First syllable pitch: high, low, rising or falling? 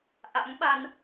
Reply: rising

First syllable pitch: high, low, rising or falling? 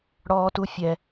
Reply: high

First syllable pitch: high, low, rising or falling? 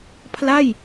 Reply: falling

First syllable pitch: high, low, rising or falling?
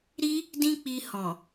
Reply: high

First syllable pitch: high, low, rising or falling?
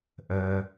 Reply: low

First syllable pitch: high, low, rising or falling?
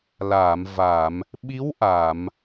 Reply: low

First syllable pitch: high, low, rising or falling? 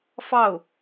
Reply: falling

